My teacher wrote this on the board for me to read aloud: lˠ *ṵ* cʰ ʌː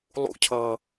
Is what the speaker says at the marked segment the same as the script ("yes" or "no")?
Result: yes